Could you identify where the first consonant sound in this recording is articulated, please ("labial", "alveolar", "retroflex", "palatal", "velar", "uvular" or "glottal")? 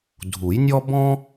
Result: alveolar